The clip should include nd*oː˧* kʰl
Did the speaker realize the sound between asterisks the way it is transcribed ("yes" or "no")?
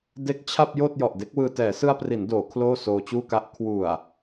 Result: no